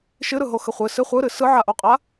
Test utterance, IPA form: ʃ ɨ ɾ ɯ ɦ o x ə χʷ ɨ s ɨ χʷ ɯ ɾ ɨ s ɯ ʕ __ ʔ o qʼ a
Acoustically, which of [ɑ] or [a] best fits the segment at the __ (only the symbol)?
a